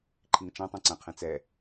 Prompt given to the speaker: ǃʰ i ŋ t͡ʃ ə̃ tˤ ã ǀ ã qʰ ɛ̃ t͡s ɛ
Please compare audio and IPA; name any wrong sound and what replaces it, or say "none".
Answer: ə̃ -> ã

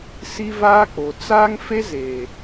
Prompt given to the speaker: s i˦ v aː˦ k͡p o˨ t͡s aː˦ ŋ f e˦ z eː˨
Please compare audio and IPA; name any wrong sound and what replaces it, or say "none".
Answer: none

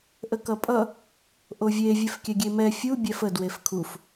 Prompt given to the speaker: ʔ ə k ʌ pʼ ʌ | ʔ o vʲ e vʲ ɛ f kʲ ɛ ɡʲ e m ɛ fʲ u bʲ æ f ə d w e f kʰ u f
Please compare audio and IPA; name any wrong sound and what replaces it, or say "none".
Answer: none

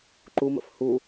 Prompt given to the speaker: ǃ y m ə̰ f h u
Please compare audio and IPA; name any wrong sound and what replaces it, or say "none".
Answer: y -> u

